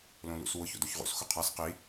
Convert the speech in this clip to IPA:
l õ l ṵ s w ʊ ç o̰ d o ç ʁ ṵ s x ʊ qʰ a s q i

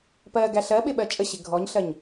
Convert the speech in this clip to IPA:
p ɜ ɡ æ ɬ ɜ ɓ ɪ ɓ ɜ t͡ʃʼ ə ɕ ɪ ɡʱ ɔ ɲ ɬ ɜ ɲ

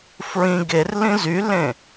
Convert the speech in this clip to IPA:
f ɹ ĩ ɡ e r l ĩ z y l ẽ

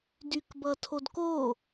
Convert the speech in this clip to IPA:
d y k b ʌ tʰ o d k o

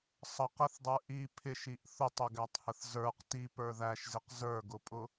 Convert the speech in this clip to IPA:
sˤ ʌ q ɛ θ dˤ ə˞ ʔ i pʰ ɪ ʃ i ʔ θ ʊ tˤ ʊ ɡ æ tˤ h ə θ z ə˞ q t i p ə˞ ð æ ʃ z ɪ q z ə˞ ɡ ʊ pʼ ʊ

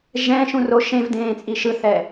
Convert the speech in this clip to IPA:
ʒ ɛ̃ ʃ ũ r o ʃ ẽ v d ẽː t͡sʼ i ʃ ɯ θ ɛ

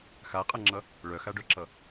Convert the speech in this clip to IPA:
x a qʼ ʌ ŋ͡ǁ ʌ | ɭ œ x a ɖ œ ǁ ʌ

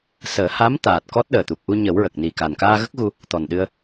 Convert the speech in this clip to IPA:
s əː˨˩˦ h a˧˥ m t̪ aː˨˩ t̚ k ɔ˦˥ t̚ ɗ əː˨˩ t̪ u˨˩ p̚ ʔ u˧ ɲ ə˨˩˦ w ɹ ə˨˩ k̚ n i˨˩ k a˨˩ n k aː˧ ɣ ə˦˥ k̚ ɣ u˧ | t̪ ɔ˨˩ n ɗ ɨ˧ ə̯

